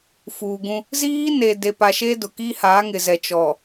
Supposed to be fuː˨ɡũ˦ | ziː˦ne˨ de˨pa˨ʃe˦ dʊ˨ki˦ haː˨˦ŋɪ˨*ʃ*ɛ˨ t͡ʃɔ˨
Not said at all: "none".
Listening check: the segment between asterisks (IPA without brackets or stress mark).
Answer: z